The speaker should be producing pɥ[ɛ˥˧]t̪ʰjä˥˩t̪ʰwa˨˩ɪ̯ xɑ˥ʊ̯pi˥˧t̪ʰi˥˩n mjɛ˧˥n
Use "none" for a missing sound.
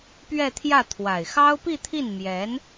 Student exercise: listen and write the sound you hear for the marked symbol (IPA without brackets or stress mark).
ɛ˥˧